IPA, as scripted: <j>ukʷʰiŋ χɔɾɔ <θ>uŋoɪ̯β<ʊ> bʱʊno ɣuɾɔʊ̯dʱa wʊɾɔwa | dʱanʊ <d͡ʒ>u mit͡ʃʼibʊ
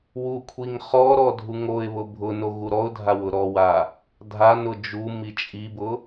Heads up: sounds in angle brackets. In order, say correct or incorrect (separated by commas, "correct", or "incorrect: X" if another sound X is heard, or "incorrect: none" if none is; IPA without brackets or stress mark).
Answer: incorrect: w, incorrect: dʱ, correct, correct